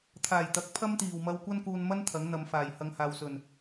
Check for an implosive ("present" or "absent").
absent